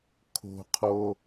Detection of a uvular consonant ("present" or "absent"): present